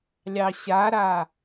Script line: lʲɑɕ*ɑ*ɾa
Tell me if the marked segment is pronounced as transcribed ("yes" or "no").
no